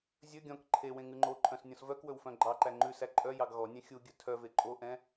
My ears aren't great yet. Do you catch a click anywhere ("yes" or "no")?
yes